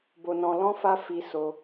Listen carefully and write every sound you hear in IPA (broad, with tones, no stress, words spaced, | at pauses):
bo˧nɔ̃˧ lɔ̃˦ fa˦fi˧ so˧